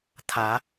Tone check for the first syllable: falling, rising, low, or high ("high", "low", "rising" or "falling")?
rising